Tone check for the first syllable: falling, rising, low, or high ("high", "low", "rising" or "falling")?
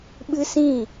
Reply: high